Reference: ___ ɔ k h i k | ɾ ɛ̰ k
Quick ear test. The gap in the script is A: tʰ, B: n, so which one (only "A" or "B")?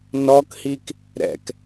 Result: B